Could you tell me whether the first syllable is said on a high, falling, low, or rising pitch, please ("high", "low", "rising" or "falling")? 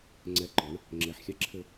rising